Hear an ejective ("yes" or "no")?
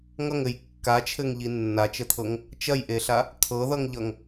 no